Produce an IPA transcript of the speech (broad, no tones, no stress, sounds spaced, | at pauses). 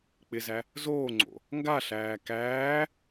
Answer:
k͡p ɪ z æ | z oː ŋ͡ǀ o̰ | ŋ ɡ a ɬ æː k æː